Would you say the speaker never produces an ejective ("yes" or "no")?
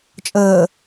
no